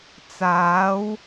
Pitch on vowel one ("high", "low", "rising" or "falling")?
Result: rising